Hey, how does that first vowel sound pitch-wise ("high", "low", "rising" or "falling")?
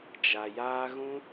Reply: low